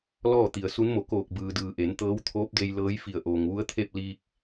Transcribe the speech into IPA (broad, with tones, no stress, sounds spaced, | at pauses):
l ɔː˥˨ t̪ i˩ ə̯ s u˧˥ n m o˧˩ k oː˧˩ k̚ b ɯː˩ d ɯː˩ ʔ e˩˧ n t̪ ɤː˧˥ w t̪ʰ oː˧˥ p̚ d e˧ j l ɤː˧˥ j f i˧˩ ə̯ ʔ oː˩ ŋ ʋ u˧˥ ə̯ t̪ʰ e˥˨ p̚ l iː˧ k̚